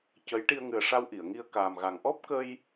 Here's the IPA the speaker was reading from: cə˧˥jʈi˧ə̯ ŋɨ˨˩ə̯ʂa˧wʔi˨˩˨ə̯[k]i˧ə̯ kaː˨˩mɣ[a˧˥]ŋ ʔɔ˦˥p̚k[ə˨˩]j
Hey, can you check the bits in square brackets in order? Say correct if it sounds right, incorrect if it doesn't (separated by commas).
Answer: incorrect, incorrect, incorrect